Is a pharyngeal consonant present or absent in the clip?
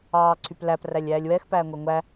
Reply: absent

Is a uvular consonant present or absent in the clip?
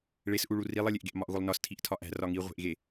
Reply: present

